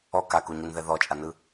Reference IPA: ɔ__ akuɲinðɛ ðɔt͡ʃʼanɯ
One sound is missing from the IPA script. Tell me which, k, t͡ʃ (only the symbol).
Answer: k